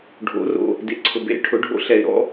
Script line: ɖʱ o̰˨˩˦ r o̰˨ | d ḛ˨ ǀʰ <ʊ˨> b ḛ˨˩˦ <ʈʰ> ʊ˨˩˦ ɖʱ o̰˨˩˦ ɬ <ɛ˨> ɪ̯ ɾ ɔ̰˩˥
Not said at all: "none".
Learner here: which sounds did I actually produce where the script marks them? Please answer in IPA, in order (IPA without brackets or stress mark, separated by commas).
ʊ˨, ʈʰ, ɛ˨